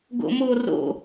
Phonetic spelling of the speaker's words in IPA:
ɡ o̰ m o r o̰

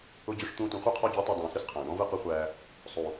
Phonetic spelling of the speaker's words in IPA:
ʊ˧ d͡ʑ ʊ˧ ʂ t̪ ũː˧ t ũ˨ χʷ ɛ˦˨ qʰ ɔ˧ d͡ʑ ʊː˨˦ tˤ ʊ˨ i̯ dˤ ũː˨ s ɨ˦ s qʰ æ̃ː˨ ɳ ɔ̃˦ v ɨ˦˨ q ɨ˦ χʷ æː˧ | sˤ u˨

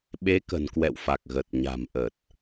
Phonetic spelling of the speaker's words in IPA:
ɓ e˨˦ k ə̤˨˩ n k w ɛ̰˧˨ w f a˨˩ k̚ ɣ ə˨˩ t̚ ɲ a̤˨˩ m ʔ ə˨˩ t̚

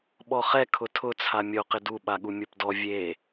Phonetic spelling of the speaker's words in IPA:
ɓ ɔ χ ɛ kʰ ʊ tʰ ʊ t͡sʰ a mʲ o q ɪ d u ɓ a ɠ u mʲ o p d ɔ vʲ e

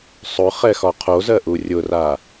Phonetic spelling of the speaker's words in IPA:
sˤ ʊ χ ɛ x ɒ qʰ o z ɜ ʔ u rʲ ʊ r a

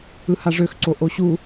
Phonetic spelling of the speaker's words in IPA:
ɯ h a ʐ ø x ǀ o ʔ o ɕ u

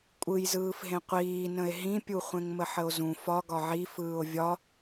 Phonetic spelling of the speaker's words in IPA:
kʷʼ ɯ j z ɯː f ɦ ẽ qʷ iː n ə̃ e̯ ɦ ĩ pʲ u χʷ ẽ ŋ m ə ħ ə o̯ z ũ f ɒ ɡ ɒ ʕ i f ɯː o̯ vʲ ɒ

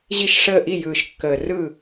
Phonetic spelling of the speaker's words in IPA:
ʑ i˥˩ ʃ ʂ əː˥˩ ʔ i˥˩ j ɯː˨˩ ʃ kː əː˨˩ r ɯ˥˩

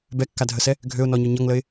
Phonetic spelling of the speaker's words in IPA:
b ɛ kː a dʱ ə s ɛ | ɡʱ ø ʊ̯ n ɔ ɲ o ɲ ʌ ŋ l ə ɪ̯

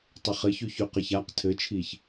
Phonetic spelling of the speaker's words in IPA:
tˤ ɘ χ ɘ ç y ç y q ɘ ç a q tʰ ɘ t͡ʃʰ i ç

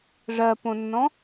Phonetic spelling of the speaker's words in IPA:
ʐ ɜ p õ nː ɔ̃

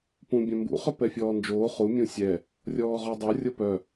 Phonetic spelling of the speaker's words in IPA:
p ũ bʲ œ̃ m b ṵ χ ɵ p ɛ fʲ ɔː n d͡ʒ oː χ u mʲ ũ sʲ ɛ | rʲ ɔː ʁ ɔ dˤ o rʲ ɤ p œ

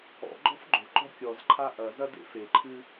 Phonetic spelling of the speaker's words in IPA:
ɔ̰ ɡ͡ǃ ɔ̤ f ɡ͡ǃ o̤ ǃ ɔ̤ kʲ ɔ z ǃʰ a ʔ ɐ z ɐ d ḛ f e ǃʰ ɨ

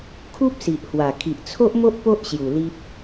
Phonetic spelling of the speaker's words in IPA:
kʰ u˦ p̚ s i˨ ʔ h w a˨˩ kʰ i˨ ʔ t͡sʰ o˦ ʔ m o˦ ʔ p o˦ ʔ ɕ j u˨˩ l i˦ p̚

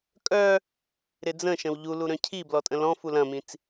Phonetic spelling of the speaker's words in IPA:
kʼ œ | ɾ ɪ d͡z ə̃ ʃ ə̃ w ʎ u l u ɾ œ̃ cʰ i b l ɔ tʼ ə̃ l ɔ̃ f u l ɐ̃ m ĩ t͡s

